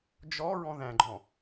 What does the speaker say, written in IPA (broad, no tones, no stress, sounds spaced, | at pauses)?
d͡ʒ ɔ ɹ ɔ̃ ð æ̃ ɡ͡ǃ ɔ̃